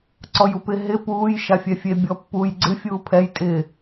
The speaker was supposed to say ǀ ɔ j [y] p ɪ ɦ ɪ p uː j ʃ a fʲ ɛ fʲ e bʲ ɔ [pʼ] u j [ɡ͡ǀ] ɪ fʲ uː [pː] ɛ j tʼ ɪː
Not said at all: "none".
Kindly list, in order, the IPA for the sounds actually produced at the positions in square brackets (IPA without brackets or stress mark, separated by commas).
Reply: u, pː, ɡ͡ǀ, pʰ